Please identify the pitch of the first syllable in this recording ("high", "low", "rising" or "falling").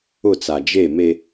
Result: falling